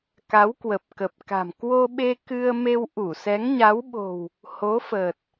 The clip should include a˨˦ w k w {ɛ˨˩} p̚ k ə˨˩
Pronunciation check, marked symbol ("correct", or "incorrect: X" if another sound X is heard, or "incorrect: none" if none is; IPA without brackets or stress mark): incorrect: ə˨˩